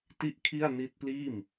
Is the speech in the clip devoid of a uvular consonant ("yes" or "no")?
yes